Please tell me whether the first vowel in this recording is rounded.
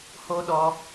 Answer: yes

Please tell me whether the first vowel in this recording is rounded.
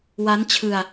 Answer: no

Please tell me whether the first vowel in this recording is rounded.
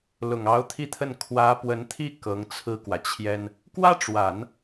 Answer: yes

